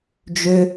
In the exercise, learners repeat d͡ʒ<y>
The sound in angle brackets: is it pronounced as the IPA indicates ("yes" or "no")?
no